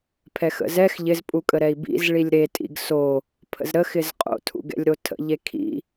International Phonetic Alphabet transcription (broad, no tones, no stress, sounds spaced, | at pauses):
pʰ ɛ x ə̰ z ɛ x ʎ ɪ z pʼ u kʼ ə ɾ ɛ i̯ b ḭ z ɭ i lʲ ɾ e tʼ ḭ ɡ s o | pʰ ə̰ z ɾ ə x ɪ z qʼ o̰ tʰ ṵ ɡ ɛ̰ lʲ ɾ o tʰ ə̰ ʎ e kʰ ḭ